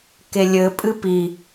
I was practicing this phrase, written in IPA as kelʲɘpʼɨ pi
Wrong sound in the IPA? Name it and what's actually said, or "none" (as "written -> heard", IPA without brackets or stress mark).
none